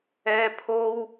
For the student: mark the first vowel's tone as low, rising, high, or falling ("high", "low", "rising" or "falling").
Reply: high